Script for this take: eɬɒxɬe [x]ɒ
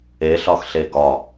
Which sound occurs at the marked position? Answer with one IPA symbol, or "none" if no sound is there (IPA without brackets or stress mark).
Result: ɡ